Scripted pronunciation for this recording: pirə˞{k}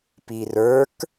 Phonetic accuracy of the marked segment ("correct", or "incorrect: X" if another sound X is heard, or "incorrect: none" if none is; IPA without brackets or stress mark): correct